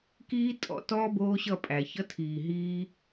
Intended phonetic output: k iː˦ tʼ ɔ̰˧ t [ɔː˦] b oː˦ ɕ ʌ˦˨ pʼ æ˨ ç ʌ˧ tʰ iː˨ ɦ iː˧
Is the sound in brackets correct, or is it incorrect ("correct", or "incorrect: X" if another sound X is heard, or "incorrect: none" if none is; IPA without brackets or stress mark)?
correct